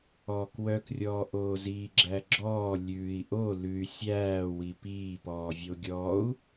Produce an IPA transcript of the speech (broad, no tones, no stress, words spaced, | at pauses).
ɔːkwœkrʲɔː ʔoːziːɡ͡ǁæɡ͡ǁɔː lʲʉːi̯ ʔo lʉy̯ sʲæː wipiːpɔːvʲo ɡʲɔːu̯